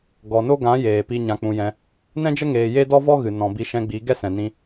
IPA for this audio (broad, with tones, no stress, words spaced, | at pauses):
ɡɔ˨no˦ ɡã˨˦ jeː˨pi˧ ɲã˧k͡pũ˧jɛ̃˧ | nɛ̃˦d͡ʒə˦ŋeː˨ je˦dɔ˦vɔ˦ɣɨ˨ nɔ̃˨bi˧ʃɛ̃˧ɡ͡bi˨˦ ɡɛ˦sɛ̃˨nĩ˧